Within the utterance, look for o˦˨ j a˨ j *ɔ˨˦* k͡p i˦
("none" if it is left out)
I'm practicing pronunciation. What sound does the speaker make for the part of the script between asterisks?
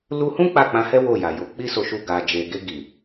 o˨˦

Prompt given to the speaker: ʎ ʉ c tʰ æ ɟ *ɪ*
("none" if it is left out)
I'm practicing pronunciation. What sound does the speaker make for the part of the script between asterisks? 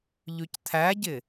ɪ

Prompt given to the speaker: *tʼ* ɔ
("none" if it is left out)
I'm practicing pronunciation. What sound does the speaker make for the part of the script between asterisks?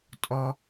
tʼ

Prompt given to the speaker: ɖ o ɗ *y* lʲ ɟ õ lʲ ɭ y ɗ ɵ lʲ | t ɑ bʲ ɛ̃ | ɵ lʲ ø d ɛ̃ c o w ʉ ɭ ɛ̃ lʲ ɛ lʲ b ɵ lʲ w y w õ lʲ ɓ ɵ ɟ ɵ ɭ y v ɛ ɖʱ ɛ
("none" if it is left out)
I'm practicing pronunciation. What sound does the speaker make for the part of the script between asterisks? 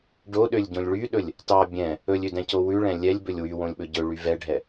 ø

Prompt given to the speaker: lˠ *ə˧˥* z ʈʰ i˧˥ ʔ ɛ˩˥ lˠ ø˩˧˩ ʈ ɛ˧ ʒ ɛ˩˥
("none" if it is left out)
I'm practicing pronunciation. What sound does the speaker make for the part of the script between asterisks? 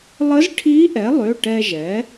ə˧˥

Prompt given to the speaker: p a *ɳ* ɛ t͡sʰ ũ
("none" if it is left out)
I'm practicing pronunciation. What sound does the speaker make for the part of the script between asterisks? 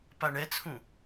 ɳ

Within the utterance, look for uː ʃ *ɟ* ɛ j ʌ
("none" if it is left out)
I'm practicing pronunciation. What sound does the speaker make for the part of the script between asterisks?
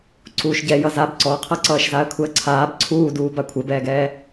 ɟ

